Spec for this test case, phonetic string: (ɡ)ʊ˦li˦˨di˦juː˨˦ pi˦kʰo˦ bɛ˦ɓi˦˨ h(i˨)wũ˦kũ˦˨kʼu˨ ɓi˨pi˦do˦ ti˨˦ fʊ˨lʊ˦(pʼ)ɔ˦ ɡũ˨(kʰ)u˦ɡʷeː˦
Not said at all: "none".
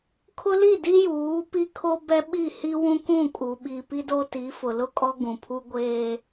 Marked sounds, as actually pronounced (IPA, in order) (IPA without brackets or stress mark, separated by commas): kʰ, i˦, kʼ, pʰ